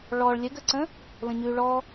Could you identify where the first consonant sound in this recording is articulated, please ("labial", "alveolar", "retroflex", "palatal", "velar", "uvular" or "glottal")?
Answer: retroflex